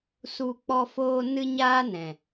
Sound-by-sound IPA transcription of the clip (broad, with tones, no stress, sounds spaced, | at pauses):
s u˧ k͡p ɔ˧ f oː˧ n ɨ˦ ɲ aː˦ n ɛ̃˨